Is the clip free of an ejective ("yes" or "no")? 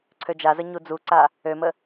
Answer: yes